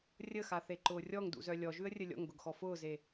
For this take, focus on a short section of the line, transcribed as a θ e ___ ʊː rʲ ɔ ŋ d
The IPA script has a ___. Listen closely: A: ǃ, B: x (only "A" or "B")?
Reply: A